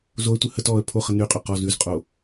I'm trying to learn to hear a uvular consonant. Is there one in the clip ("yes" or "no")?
yes